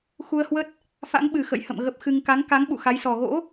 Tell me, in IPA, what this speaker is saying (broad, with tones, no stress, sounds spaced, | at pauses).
x u˧ ə̯ h w ə˦˥ t̚ | f a̰˧˥ ŋ ɓ ɨ˨˩ x ə̰˧˨ j h ə̰˧˨ m ɣ ə˦˥ p̚ x ɨ˧ ŋ k a˨˦ ŋ k a˨˦ ŋ ɓ ṵ˧˨ x a˨˦ j s ɔ˨˩ ɣ o̰˧˥